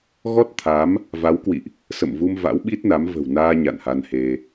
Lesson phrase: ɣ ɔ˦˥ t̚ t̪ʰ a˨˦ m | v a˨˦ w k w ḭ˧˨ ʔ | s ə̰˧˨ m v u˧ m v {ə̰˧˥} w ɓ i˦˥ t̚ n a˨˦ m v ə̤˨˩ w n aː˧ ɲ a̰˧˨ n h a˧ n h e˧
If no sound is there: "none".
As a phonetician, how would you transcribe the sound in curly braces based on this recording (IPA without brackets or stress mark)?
a̰˧˥